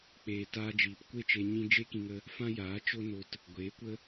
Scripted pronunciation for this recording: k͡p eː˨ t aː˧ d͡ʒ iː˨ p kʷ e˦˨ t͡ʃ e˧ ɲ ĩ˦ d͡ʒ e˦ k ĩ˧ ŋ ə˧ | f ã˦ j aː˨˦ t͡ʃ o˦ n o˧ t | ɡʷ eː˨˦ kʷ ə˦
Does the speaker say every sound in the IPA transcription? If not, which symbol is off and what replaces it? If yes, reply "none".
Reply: none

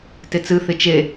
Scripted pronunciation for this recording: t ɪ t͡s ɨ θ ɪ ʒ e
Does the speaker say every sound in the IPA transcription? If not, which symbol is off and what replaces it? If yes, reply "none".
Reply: ʒ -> t͡ʃ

